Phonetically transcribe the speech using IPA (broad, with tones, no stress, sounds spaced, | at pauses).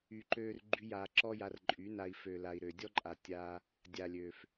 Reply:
y˨ ǃ øː˧ r ɡ͡ǃ y˧ j aː˨ ǁ ɔ˦ j a˧ r ǃʼ y˨˦ n a˧ i̯ f ø˨ l a˨ i̯ ɾ ø˨ dʲ ɔ˦ ǃʼ a˨ tʲ a˧ | dʲ aː˨ lʲ ø˨ f